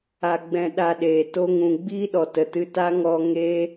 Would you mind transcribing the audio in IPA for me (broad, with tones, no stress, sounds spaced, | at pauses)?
a˧ ɡ͡b ɛ̃˧ ɗ a˧ ɗ eː˨ t o˧ ŋ ũ˨ ɡ͡b iː˦ ɗ ɔ˨ t ə˨ t ɨ˧ t a˦ ŋ ɔ˧ ŋ eː˦